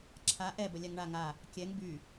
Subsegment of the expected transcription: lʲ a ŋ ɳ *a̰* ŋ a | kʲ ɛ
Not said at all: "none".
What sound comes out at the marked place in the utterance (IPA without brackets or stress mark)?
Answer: a